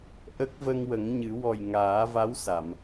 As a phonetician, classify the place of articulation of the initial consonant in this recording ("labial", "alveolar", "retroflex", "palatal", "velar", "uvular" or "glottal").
glottal